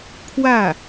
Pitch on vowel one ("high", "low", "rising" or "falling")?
falling